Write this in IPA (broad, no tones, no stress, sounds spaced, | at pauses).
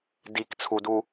d i k t͡sʰ u d u